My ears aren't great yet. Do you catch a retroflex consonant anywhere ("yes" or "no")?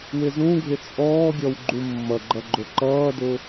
no